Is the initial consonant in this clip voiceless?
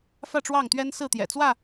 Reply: yes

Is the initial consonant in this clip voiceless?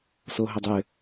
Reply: yes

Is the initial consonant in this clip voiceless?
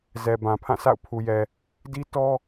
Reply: no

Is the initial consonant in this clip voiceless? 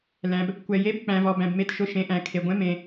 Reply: no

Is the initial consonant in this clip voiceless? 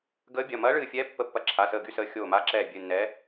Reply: no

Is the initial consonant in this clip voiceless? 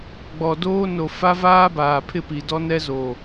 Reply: no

